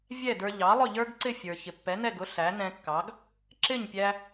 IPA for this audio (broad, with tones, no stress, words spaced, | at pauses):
vʲɛ˥˩də˞˧ ʎɑ˩˥lˠʊ˥˩ʎə˞˥ɡǀɪ˥˩ fʲə˞˩ çɪ˩pːɛ˩˥nɛ˥˩ɡʊ˩˥ ɬæ˩˥nɛ̃˧kːɑ˩˥ɡ | ǁɪ˥˩ɲpʲæ˧